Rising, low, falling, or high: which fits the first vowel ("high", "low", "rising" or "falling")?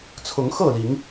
rising